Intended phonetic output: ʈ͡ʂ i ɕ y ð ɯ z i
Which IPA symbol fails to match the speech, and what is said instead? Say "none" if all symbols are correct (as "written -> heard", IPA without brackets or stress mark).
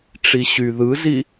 none